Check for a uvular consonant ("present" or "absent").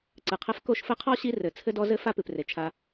present